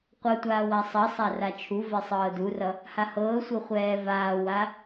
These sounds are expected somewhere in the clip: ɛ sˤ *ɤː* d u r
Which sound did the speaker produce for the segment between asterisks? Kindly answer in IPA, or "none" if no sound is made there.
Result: ɤː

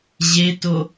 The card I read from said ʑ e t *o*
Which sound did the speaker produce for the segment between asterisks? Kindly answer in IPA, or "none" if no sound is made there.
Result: o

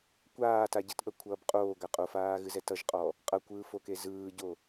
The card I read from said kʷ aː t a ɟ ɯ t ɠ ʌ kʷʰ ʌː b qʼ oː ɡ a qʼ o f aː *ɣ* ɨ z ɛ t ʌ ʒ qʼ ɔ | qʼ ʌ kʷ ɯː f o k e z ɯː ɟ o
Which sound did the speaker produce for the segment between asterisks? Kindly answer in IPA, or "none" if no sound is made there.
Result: ɣ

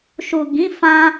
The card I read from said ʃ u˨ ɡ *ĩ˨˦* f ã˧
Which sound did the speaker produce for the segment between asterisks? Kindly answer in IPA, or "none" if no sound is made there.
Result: ĩ˨˦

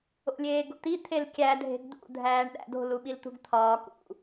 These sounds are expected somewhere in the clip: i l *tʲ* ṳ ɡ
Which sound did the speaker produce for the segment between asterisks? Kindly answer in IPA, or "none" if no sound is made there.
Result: t̪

